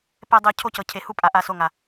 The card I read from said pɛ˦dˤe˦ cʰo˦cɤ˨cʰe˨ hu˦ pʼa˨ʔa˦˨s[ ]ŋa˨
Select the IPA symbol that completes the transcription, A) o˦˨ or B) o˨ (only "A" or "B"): A